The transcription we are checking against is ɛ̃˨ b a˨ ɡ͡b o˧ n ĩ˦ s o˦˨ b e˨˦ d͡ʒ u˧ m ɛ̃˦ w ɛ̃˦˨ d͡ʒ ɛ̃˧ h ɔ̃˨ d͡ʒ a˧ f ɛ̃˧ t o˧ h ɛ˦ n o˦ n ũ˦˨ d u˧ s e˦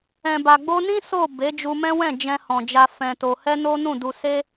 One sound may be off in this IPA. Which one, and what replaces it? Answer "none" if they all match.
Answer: none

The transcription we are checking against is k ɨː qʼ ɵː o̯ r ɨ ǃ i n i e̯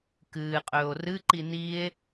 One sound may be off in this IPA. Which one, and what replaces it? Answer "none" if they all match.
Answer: none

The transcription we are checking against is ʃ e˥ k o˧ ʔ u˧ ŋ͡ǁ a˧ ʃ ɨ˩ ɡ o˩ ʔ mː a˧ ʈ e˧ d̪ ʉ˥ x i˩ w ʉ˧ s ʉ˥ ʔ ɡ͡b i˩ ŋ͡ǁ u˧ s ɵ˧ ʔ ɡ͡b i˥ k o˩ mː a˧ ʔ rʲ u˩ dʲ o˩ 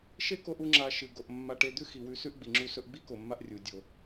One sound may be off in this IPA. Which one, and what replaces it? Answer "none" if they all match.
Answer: none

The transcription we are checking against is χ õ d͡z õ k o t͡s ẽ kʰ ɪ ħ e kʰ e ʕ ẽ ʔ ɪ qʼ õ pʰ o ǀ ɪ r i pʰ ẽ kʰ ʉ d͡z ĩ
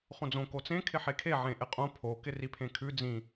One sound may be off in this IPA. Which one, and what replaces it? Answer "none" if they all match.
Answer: ǀ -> k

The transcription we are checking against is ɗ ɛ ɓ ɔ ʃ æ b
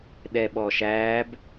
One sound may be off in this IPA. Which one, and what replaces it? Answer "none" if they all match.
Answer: none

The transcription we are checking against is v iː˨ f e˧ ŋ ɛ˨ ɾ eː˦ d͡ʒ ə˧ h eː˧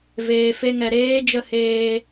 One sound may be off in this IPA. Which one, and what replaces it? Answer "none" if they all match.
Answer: iː˨ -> eː˨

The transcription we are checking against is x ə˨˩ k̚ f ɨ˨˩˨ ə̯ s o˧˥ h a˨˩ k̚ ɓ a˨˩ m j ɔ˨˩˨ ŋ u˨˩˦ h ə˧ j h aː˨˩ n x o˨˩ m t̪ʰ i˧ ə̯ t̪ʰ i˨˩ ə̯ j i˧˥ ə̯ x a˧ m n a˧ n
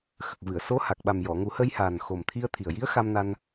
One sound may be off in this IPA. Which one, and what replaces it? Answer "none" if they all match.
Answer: f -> v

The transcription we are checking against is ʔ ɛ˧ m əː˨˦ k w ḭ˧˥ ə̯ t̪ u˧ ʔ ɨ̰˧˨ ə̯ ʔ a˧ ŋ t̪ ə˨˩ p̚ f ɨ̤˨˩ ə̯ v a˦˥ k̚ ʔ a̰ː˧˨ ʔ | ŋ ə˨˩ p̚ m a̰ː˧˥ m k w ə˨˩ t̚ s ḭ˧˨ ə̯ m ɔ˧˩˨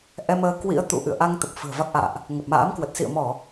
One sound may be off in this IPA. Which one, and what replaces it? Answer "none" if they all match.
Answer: u˧ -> ṵ˧˨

